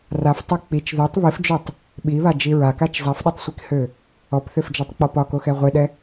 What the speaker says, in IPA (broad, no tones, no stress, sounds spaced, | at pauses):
r a f tˤ ɛ k͡p i t͡ʃ ð ɛ tˤ β i f d͡ʒ ø tˤ | ɓ i β a d͡ʒ i ɹ a k a t͡ʃ zˤ a f ɗ ɒ tˤ sʷ i k h ø | ɔ p θ ø f d͡ʒ ɔ tˤ k͡p ɔ p ɒ k o x ɛ ʁʷ e ɗ ɛ